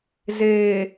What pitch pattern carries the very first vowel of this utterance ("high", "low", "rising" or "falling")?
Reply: low